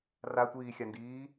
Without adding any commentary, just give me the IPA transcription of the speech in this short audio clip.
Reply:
r a tʷ iː xʲ a n d iː

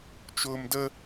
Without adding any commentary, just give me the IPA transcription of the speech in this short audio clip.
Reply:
t͡ʃ ʊː m d ə

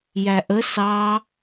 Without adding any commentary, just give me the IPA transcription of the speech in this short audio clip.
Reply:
j æ ʔ ə s ɑ

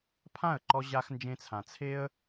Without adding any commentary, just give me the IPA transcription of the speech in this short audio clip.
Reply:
pʰ ã˦˨ ə̯ ǃ ɔ˧ ʑ a˧ x n d͡ʒ ẽ˧ t͡sʰ ã˨ t͡sʰ e˦ ə̯

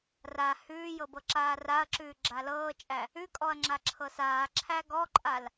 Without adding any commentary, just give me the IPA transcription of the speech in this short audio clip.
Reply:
r a h ʉː j ɤ b ɤ ǁ aː r a ɐ̯ ǁ ʉː ɡ͡ǁ a l ɤː t͡ʃʼ æ | ʉ kʼ ɔ ɐ̯ ŋ͡ǁ a ǁʰ ɤ s aː ǁʰ æ ɡ ɔ ǃʼ a l

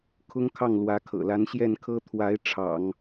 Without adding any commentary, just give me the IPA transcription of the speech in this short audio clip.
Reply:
kʰ ʊ˥ ŋ kʰ ɑ˥˩ ŋ l w ä˧˥ kʰ ɤ̰˨˩ l a˧˥ n ɕ j ɛ˥˩ n kʰ ɤ˥ t̪ʰ w a˧˥ ɪ̯ ʈ͡ʂʰ ɑ̰˨˩˦ ŋ

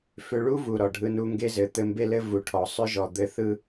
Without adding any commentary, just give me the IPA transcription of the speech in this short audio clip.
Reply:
f ʏ˧ ɭ u˥ v u˩ ɾ ɔ˩ ɖʱ ɯ˧ n u˧ ŋ ɡ e˧ z ɘ˩ t̪ ɘ˧ m b e˥ l ɘ˥ v u˩ ʈʰ ɔ˩ sˤ ʏ˥ ʒ ɔ˩ d̪ ɘ˧ θ ɯ˥

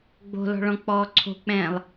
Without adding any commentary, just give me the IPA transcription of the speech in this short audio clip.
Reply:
ɡ͡b o̤ l ɔ̤ ɭ ɔ̃ k͡p ɔː ǀʰ o̤ k͡p ɛ̃ː lˠ

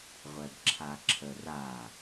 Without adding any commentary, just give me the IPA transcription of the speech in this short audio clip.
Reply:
ʁʷ ɛ b ǁʰ a ǁʰ ə r a

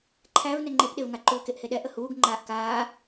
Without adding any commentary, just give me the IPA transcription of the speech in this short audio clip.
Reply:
ǃʰ æ v n ɛ ŋ͡ǃ e p ɗ e v ŋ a ǃ uː k e ʔ h e ɗ ɛ ʔ ə h uː ɡ ŋ͡ǃ aː ʔ k aː

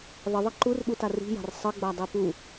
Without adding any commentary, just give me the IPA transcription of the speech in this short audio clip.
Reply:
ðˤ ə ðˤ ə ǃ u r ɓ u t a r i̤ j a̤ r sˤ ə ɡ͡b a dˤ e p u

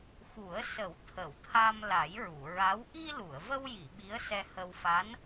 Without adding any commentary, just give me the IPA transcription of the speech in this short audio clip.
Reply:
x u˨˩˦ ə̯ s ə˨˩˦ w t̪ʰ ə˨˩˨ w t̪ʰ a˧ m l a˨˩˦ j ɹ u˨˩˨ ɹ a˧˥ w ʔ i˧ l u˨˩˨ ə̯ v ə˧ w j i˨˩˨ ɓ i˧˥ ə̯ s ɛ˧ h ə˧ w f a˧˥ n

